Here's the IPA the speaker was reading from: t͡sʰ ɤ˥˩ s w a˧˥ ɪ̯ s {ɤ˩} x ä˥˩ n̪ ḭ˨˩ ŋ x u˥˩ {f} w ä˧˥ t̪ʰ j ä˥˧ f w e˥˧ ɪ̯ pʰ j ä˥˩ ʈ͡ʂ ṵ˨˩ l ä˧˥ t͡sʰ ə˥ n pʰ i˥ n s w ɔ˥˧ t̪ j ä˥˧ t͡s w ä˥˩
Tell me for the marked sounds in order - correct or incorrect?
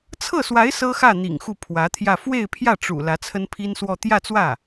incorrect, incorrect

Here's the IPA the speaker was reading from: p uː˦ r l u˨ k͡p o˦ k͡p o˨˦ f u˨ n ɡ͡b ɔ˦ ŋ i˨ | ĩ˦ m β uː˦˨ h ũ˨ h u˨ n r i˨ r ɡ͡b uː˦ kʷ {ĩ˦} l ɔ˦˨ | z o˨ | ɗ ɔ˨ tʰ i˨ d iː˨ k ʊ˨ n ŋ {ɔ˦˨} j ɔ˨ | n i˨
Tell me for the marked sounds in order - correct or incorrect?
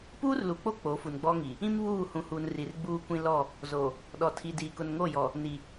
correct, incorrect

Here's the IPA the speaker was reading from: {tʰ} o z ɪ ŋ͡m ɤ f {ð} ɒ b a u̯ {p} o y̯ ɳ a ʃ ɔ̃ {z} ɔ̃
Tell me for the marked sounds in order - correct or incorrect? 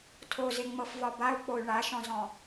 correct, incorrect, incorrect, correct

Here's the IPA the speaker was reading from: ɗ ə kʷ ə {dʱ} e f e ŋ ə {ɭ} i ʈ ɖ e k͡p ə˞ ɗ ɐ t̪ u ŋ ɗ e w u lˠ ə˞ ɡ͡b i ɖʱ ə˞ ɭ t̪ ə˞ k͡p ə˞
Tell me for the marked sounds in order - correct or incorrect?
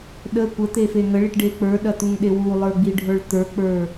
incorrect, correct

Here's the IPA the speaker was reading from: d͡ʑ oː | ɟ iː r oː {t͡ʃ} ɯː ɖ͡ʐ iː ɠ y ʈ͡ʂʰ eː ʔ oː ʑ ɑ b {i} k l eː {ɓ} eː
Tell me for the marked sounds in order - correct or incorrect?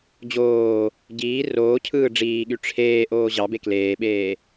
incorrect, incorrect, correct

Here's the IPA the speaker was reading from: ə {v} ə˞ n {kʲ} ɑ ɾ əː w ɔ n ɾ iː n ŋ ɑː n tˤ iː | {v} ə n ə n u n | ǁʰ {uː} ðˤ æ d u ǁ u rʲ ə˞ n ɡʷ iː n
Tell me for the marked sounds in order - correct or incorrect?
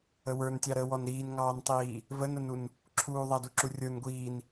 incorrect, incorrect, correct, correct

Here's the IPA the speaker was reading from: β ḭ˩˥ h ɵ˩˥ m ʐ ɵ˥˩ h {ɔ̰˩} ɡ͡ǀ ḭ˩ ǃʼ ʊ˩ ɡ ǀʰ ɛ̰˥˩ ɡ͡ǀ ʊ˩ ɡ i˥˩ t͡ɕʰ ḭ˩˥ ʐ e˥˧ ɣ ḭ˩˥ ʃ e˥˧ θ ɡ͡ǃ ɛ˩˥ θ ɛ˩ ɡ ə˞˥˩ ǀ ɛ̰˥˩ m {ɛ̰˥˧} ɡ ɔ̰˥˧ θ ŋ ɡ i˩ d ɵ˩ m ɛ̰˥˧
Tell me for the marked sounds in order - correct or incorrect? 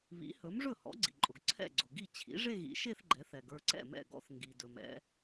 incorrect, incorrect

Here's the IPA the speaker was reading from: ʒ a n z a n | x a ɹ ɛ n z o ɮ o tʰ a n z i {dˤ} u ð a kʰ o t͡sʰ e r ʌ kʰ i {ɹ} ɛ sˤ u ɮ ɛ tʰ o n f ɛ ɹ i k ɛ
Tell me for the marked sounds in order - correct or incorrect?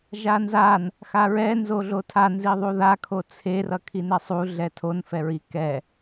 incorrect, incorrect

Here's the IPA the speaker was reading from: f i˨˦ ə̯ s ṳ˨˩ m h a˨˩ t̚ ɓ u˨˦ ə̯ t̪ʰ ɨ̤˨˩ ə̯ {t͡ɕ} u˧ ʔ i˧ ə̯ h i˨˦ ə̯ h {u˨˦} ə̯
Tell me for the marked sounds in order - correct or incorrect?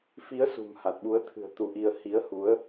incorrect, correct

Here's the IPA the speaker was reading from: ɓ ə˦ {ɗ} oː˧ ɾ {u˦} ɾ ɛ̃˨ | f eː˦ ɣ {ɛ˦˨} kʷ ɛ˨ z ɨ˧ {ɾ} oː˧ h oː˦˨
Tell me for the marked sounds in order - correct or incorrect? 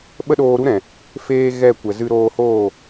correct, correct, correct, correct

